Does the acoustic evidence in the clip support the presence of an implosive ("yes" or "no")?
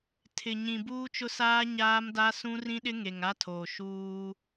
yes